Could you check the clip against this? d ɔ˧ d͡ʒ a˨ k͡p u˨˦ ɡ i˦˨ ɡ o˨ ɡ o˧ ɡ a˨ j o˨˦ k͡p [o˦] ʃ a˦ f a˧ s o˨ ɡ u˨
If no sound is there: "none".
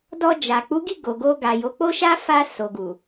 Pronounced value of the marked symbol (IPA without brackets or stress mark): o˦